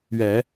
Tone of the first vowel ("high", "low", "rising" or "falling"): low